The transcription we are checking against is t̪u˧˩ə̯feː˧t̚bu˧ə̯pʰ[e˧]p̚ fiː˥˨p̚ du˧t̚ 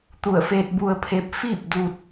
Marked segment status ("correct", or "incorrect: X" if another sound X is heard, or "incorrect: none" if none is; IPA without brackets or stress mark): correct